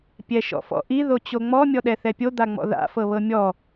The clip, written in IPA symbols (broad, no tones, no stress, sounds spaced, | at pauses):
pʲ ɛ ʃ ɔ̰ f ɔ̰ ʔ i ð o t͡ɕ o ŋ͡m ɔ mʲ ɔ ɗ ɛ θ ɛ pʲ o d̪ a ŋ͡m ɔ̰ ð a̰ f ɤ β ɤ mʲ ɔ